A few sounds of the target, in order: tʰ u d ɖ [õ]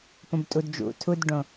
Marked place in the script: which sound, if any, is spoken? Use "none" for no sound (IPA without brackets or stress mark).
õ